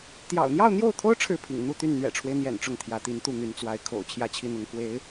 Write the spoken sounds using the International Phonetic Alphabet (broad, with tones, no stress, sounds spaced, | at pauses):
t̪ j ɑ̰˨˩ ʊ̯ n̪ j ɑ˥˧ ʊ̯ n̪ j o˥˩ ʊ̯ t̪ʰ o˥ ʊ̯ ʈ͡ʂʰ ɻ̩˥˩ pʰ ḭ˨˩ ŋ n̪ u˥˧ t̪ y˥˩ n n̪ ɥ ɛ̰˨˩ ʈ͡ʂʰ w e˦ ɪ̯ n̪ j ɛ̰˨˩ n ʈ͡ʂ ʊ˥˩ ŋ t̪ʰ j ä˧˥ t̪ i˧˥ n t̪ u˥˩ n̪ y˧˥ n t͡s w a˧˥ ɪ̯ kʰ o̰˨˩ ʊ̯ t͡ɕʰ j ä˥˧ t͡ɕʰ i˥˩ n̪ ʊ˧˥ ŋ k w e˧˥ ɪ̯